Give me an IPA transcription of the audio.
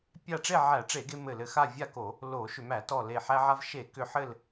pʲ a˥˨ ʈ͡ʂ e˥˨ ʕ æ˧˩˧ ʈ͡ʂ e˧˩˧ ɡ e˧ m ɘ˧˩ l ɘ˧˩ x a˥˨ vʲ a˥˨ k o˧˩˧ | l o˧˩˧ ʃ ʏ˧˩˧ m æ˧˩˧ t ɔ˧˩ l e˧˩ ħ æ˧ ʕ a˧ v ʃ e˧˩˧ k ʏ˧ ħ ɘ˥˨ l

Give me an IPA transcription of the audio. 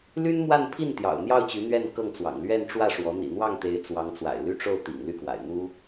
l y˥ n m w a˥˧ n pʰ i˥˩ n t̪ j ɑ̰˨˩ ʊ̯ n̪ j ɑ˥˩ ʊ̯ t͡ɕ y˧˥ n̪ ɥ ɛ˥˧ n k ɤ˥˩ ŋ t͡s w ɑ̰˨˩ ŋ l ɥ ɛ˥˧ n ʈ͡ʂ w ä˥˩ ʂ w ɔ˧˥ n̪ ḭ˨˩ n̪ w ɑ˥˩ ŋ t̪ e˧˥ ɪ̯ t͡s w ɑ˧˥ ŋ t͡s w a̰˨˩ ɪ̯ l y˥˧ ʈ͡ʂ o˥˩ ʊ̯ t̪ ḭ˨˩ ŋ l y˥˩ k w a̰˨˩ ɪ̯ n̪ u˥

